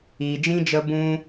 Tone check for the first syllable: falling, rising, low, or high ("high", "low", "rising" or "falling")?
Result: low